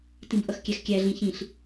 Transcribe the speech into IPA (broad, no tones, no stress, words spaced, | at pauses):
tĩbʔʌxkʲæxkʲæ ɮĩçĩɬ